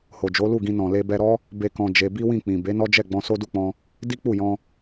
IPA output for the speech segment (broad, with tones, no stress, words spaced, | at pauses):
ho˨d͡ʒo˨˦lu˦˨ɡĩ˧ nɔ̃˨le˧bɛ˧ɾɔ˦ | be˦kɔ̃˧d͡ʒe˧ bi˦wĩ˦˨k͡pĩ˨ be˨˦nɔ˦d͡ʒɛ˦˨ ɡ͡bɔ̃˧so˦du˦˨k͡pɔ̃˧ | di˦k͡pu˦˨jɔ̃˧